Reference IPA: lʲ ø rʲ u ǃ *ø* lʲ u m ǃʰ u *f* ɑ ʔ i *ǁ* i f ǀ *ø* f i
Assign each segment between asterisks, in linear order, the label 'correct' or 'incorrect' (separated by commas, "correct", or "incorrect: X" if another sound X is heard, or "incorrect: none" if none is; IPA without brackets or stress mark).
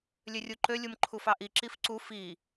correct, correct, correct, incorrect: u